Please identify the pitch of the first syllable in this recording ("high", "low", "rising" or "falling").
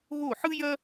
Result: falling